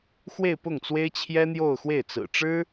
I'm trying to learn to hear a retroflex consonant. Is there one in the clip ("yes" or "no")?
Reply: yes